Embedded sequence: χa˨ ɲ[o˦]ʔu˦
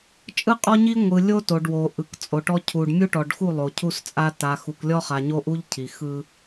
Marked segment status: correct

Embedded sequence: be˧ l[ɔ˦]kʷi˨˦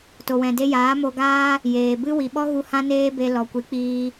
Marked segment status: incorrect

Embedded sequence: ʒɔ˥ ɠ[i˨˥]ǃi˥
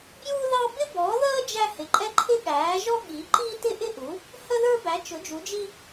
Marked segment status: correct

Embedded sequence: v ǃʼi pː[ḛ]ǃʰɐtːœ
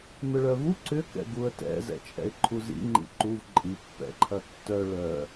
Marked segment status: incorrect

